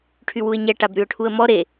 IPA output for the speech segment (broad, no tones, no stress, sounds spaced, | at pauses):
ʈʰ y w u ɪ̯ ɲ ɛ ʈ a b ɾ y ʊ̯ ʈʰ u ə̯ m ɔ ɾ e